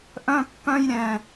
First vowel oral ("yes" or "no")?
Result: no